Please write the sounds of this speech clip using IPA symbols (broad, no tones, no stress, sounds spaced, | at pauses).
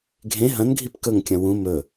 ɡʱ ẽ ɦ ɐ̃ n ɡʱ i p k ɵ ŋ kʲ ɐ̃ w ũ m ɵ